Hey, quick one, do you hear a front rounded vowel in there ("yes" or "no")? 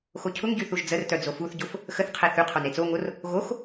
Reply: yes